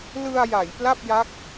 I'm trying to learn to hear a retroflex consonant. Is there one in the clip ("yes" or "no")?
no